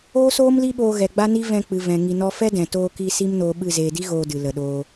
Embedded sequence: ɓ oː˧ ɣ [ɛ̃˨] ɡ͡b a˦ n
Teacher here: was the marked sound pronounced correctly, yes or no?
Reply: no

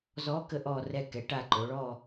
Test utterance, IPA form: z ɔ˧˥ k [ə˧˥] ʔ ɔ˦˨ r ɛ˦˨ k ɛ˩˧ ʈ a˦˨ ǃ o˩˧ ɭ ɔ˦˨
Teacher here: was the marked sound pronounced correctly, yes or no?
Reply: yes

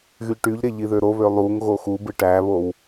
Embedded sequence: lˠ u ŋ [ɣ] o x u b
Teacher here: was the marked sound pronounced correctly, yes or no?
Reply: yes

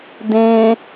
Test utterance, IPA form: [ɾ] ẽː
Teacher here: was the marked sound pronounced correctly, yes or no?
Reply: no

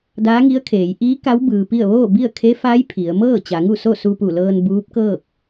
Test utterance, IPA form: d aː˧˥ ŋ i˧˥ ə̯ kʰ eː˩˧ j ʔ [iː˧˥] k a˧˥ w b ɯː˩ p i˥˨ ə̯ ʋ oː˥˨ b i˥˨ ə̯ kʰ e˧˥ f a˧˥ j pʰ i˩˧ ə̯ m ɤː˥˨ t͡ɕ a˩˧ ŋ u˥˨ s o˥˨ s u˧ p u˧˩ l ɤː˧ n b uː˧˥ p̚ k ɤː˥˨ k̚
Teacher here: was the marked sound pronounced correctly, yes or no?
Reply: yes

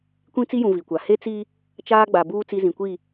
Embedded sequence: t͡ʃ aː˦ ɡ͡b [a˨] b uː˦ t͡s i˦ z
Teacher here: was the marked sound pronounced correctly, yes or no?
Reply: yes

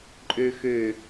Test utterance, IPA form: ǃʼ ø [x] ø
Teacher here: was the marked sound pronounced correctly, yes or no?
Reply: yes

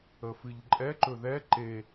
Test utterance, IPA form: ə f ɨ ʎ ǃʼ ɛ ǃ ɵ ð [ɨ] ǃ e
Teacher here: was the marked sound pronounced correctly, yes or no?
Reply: no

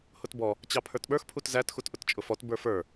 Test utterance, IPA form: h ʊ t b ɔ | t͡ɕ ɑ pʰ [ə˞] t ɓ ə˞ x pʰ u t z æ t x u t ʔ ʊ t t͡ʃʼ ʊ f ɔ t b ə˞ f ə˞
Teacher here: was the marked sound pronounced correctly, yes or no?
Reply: yes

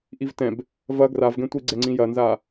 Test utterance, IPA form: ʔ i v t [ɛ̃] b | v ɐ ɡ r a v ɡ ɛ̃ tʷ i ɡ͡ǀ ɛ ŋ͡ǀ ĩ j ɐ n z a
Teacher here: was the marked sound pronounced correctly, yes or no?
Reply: yes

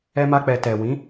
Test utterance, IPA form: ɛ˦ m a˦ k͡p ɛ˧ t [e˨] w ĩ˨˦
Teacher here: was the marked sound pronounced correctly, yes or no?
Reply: no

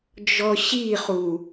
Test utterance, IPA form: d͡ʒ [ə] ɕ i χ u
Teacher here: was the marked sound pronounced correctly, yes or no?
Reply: no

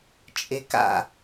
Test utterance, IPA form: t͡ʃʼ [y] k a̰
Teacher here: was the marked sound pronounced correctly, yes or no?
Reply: no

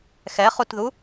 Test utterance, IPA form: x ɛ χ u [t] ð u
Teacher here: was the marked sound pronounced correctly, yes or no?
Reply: yes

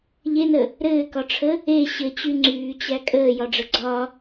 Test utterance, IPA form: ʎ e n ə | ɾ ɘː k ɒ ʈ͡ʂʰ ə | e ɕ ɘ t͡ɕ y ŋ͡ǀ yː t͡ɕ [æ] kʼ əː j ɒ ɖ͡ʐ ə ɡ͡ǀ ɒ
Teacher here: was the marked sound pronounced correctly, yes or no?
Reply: yes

